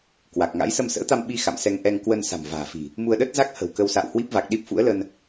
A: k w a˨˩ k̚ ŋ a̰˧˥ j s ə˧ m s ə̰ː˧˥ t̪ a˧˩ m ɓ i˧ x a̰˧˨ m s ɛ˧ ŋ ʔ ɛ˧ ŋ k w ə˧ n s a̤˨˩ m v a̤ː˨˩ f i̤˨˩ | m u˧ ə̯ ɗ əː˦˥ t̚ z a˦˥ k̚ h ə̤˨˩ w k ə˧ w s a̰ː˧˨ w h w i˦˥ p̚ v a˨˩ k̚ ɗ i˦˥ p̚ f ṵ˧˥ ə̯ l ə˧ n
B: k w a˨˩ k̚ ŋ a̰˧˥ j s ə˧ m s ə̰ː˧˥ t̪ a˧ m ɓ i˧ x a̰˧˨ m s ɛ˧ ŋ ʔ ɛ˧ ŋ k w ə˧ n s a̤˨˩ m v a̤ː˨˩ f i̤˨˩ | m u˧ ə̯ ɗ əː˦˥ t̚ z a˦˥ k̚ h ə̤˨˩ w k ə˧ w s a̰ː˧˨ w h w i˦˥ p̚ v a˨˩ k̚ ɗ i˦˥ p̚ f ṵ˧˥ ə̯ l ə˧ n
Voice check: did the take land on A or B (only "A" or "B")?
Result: B